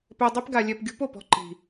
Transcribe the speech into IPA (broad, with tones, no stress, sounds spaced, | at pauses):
p ɛ˧ dˤ i˦ p ɡ a˧ lʲ ɛ˧ p ɡʲ ṳ˦ p o˦˨ p ɔ̤˦ ǃ i̤˨